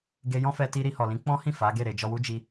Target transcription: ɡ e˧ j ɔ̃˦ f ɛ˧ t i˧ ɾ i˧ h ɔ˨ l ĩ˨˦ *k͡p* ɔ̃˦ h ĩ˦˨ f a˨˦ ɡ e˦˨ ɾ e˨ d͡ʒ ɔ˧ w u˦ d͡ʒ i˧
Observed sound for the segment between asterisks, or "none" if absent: k͡p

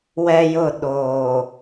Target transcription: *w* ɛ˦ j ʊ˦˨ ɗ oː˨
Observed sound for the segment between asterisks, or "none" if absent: w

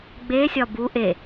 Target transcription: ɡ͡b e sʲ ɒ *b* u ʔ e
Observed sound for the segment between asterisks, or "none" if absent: b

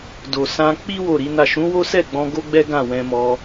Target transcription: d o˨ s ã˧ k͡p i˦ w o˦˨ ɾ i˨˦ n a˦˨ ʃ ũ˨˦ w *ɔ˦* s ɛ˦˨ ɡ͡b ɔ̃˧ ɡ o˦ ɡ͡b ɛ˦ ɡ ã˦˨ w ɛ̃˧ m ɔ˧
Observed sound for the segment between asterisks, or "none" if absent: o˦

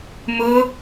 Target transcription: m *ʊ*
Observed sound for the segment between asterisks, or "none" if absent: ʊ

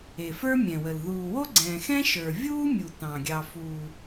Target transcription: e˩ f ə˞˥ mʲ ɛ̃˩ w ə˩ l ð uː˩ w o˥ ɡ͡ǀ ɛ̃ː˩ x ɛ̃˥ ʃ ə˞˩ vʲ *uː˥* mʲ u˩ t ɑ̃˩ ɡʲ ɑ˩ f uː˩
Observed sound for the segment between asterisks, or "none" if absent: uː˥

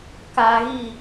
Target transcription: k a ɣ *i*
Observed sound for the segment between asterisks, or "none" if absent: i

